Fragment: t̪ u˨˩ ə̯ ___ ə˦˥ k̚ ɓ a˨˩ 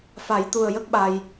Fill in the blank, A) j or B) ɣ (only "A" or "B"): A